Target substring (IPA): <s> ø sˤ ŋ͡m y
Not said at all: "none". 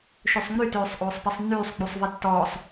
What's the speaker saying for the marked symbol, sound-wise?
ʃ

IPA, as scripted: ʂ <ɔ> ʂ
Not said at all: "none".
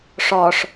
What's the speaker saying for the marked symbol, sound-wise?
ɔ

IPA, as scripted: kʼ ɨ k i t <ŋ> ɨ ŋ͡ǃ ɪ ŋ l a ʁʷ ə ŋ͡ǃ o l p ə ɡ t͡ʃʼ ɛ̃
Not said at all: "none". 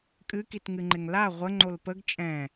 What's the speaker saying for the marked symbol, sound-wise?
ŋ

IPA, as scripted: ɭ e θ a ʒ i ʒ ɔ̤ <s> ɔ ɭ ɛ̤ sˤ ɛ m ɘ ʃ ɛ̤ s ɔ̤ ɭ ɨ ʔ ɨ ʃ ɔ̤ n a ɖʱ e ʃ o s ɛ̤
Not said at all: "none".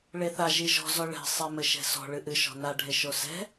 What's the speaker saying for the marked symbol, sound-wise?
z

